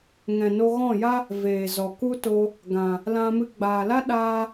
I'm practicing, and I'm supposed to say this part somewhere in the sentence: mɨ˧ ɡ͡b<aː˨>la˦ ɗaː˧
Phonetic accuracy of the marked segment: correct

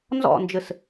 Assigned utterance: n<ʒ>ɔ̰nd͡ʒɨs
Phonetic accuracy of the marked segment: incorrect: z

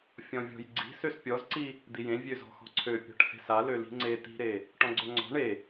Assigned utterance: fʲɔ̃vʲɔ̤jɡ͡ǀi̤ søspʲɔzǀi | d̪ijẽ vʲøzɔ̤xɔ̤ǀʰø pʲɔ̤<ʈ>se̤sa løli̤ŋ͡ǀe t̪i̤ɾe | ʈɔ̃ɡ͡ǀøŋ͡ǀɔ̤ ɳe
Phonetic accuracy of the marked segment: correct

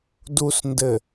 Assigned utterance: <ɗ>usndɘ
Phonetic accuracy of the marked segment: incorrect: d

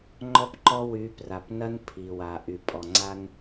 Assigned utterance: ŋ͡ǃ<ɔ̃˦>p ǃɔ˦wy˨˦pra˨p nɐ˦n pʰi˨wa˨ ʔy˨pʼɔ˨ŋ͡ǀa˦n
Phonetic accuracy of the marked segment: incorrect: ɔ˦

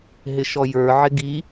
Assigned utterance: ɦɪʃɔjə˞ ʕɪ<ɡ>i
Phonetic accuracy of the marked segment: correct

